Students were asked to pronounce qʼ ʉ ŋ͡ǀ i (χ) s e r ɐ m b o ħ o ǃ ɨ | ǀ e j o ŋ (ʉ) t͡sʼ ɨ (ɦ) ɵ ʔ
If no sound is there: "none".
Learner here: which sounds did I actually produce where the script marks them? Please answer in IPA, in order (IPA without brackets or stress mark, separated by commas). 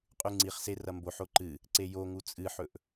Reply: χ, u, ħ